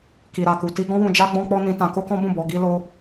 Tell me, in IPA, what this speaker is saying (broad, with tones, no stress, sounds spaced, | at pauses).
k i˨ ɾ a˨ k u˨ t i˧ ɡ ɔ̃˦ w ũ˧ d͡ʒ a˦ ɡ͡b ɔ̃˦ k͡p ɔ˦ n ĩ˧ t ã˧ k o˦ k ɔ̃˦ b ũ˦˨ b ɔ˧ ɡ i˦ l o˦